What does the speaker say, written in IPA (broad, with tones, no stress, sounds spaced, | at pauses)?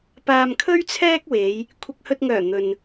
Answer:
p aː˧ m kʰ ɵ˥ ɥ t͡sʰ ɛː˥ k̚ w e˨˧ j | kʷʰ ɐ˨ k̚ h ɵ˨ t̚ ŋ œː˨˩ n̪ ɵ˨ n